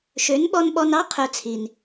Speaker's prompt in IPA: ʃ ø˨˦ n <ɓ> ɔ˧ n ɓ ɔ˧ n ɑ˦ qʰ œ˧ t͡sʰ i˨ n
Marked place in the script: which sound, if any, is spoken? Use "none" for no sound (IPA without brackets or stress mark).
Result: ɓ